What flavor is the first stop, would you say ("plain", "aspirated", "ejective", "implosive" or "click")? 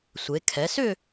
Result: aspirated